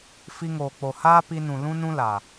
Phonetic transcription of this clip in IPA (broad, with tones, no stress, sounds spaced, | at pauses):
f i˧ ŋ oː˨ k͡p o˨ h aː˦ p i˧ n ũ˨ l ũ˦ n ũ˦ l a˨